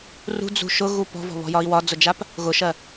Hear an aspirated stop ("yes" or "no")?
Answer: no